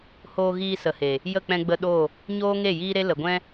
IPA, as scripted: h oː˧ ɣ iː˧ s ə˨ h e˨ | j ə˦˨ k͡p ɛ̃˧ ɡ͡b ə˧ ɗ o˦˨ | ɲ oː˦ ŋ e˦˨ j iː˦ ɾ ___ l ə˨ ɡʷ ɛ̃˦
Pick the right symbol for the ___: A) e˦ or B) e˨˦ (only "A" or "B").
A